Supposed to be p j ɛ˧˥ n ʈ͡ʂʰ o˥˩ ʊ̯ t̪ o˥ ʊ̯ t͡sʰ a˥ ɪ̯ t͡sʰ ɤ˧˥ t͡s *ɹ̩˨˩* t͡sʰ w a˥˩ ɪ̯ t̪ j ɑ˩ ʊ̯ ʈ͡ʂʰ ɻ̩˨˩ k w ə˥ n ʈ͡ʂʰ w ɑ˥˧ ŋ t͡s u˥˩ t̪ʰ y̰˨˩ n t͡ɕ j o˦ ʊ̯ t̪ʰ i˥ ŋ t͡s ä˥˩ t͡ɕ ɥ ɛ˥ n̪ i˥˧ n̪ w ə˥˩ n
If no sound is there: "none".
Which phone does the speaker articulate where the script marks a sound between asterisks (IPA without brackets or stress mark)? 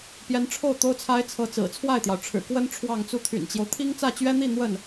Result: ɹ̩˨˩